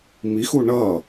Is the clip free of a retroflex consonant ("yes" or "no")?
no